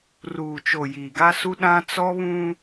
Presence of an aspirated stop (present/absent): absent